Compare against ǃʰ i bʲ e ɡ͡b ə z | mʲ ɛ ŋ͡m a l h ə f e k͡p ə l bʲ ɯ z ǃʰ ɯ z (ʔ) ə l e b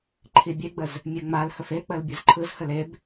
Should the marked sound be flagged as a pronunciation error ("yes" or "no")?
yes